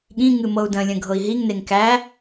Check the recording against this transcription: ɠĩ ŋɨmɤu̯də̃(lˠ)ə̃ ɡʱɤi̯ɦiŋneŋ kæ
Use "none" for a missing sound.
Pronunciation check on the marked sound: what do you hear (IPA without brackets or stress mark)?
lʲ